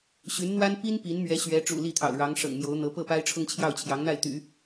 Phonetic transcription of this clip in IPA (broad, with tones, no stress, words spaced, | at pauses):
ɕy˧˥nn̪wa˥n pi˥n pi˧˥nmɥɛ˧˥ ɕɥɛ˧˥ʈ͡ʂṵ˨˩ li˥˩t̪ʰɑ̰˨˩ʊ̯ɻɑ˧˥ŋ ʂɤ̰˨˩ŋmjo˧˥ʊ̯ n̪ɤ˧˥ pɤ˥˩pa˥ɪ̯ʈ͡ʂʰʊ˥ŋ t͡ɕʰjɑ˥˩ʊ̯t͡ɕʰjɑ˧˥ŋn̪a˥˩ɪ̯t̪y̰˨˩˦